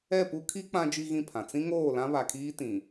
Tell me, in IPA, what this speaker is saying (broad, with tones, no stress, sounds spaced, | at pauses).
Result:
ɛ˦˨ p u˦ kʰ i˦ k͡p ã˦ d͡ʒ i˦ ɣ ĩ˦˨ pʰ ã˨ t͡s ĩ˦ ŋ oː˦˨ l ã˦ β a˨ kʰ iː˦ t ĩ˨